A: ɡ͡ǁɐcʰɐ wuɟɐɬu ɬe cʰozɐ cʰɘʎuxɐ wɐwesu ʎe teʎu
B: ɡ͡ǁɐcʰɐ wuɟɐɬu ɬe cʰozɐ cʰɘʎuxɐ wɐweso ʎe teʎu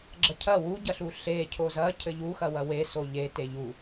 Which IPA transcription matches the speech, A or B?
B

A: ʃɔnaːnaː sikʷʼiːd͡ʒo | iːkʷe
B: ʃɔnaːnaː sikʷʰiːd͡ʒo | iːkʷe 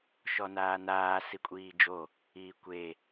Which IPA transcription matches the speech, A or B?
A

